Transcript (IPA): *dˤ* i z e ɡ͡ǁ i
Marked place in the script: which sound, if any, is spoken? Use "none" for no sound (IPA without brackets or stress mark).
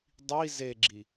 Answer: dˤ